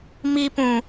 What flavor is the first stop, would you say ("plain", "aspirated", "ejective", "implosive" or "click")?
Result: plain